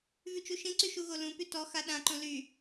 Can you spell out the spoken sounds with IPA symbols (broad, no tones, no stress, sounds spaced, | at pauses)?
v y t͡ʃ u ʃ ĩ ǀ y ʃ u ɣ o l ũ p y t ɔ x a ɗ ã ǃ õ l y